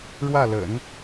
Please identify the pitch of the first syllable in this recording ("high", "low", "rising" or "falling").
falling